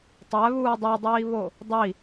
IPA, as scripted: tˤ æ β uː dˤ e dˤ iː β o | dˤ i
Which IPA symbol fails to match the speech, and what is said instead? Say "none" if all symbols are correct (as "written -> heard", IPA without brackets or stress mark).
none